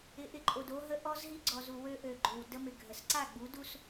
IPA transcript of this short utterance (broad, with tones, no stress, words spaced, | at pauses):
ɪ˨˦ʔɪ˨ǃʼo˨d o˦ɦə˦ ʔɔ˦zɦi˦ɡ͡ǀɔ˨zu˨ wø˦ʔø˨ ɡ͡ǃʏ˨w də˦mɪ˨ ɡʱə˨s ǀa˦˨ɡ͡bu˨˦du˦s